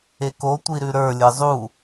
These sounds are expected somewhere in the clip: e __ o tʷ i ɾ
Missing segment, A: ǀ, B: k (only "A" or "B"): B